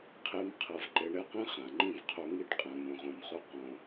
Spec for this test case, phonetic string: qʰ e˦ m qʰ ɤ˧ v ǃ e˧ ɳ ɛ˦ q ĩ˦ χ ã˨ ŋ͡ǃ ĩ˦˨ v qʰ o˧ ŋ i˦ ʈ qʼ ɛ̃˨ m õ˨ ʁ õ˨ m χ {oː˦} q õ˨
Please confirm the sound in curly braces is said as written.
no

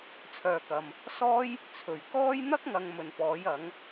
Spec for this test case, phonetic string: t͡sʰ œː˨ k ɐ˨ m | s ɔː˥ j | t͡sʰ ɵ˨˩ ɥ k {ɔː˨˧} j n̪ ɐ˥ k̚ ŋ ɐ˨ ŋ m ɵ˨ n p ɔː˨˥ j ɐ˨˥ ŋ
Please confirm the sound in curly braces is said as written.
no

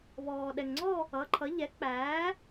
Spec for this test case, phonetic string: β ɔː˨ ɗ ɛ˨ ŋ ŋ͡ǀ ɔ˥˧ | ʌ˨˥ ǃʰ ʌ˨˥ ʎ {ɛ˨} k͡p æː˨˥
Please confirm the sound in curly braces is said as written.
no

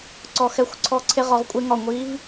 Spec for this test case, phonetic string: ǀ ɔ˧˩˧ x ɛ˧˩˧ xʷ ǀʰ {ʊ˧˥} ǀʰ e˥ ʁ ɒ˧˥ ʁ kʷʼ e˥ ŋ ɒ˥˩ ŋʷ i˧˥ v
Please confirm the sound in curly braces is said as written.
no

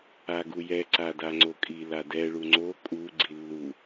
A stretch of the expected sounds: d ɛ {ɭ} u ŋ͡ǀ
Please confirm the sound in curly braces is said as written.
yes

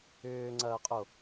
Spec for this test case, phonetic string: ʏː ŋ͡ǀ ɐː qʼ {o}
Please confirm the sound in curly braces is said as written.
yes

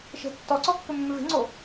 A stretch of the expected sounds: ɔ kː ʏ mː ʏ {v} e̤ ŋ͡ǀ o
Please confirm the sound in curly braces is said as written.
yes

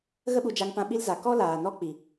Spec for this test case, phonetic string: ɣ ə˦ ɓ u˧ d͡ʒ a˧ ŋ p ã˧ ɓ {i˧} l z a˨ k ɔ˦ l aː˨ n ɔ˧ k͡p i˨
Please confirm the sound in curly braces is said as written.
yes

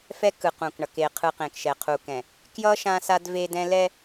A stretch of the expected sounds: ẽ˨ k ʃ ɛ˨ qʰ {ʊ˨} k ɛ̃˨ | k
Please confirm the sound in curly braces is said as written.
no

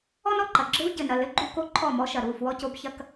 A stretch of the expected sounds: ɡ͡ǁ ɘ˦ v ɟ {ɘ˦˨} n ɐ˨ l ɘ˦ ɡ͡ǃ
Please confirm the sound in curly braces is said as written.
no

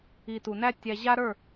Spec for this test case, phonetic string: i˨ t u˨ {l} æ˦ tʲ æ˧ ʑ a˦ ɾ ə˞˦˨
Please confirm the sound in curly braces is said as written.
no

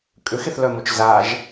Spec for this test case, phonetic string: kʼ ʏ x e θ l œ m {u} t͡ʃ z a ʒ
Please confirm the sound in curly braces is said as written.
no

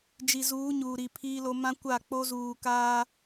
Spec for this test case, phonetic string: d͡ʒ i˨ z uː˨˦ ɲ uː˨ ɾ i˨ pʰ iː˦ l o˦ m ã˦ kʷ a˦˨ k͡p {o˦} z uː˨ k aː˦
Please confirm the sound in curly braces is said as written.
yes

